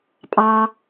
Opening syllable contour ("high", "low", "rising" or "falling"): low